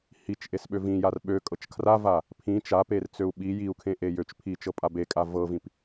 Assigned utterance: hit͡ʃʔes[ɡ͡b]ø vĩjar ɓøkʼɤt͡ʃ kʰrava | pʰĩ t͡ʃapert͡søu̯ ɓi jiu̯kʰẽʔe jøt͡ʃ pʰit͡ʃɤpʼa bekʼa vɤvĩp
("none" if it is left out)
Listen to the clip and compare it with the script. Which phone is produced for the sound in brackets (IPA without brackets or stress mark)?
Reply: ɓ